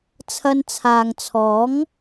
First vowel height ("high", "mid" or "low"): low